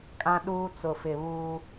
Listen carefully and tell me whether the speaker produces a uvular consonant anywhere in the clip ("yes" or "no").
no